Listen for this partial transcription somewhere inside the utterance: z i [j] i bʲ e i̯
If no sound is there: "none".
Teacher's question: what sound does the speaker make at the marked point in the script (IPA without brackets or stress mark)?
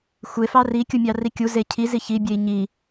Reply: ç